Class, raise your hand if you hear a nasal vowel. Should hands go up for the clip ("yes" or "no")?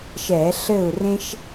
yes